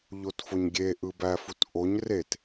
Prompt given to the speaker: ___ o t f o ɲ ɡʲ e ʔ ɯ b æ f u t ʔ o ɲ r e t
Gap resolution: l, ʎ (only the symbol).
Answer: ʎ